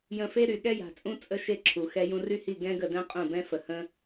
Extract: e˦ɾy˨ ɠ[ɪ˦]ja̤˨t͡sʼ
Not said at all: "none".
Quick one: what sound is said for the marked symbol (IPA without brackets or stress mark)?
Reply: ɛ˦